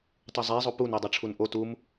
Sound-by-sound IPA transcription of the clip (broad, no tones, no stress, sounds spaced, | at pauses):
tˤ u zˤ e zˤ o p u n e dˤ ʌ ʈ͡ʂʰ u n ʔ o t u m